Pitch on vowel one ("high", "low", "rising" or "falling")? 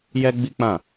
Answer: high